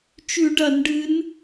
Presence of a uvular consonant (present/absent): absent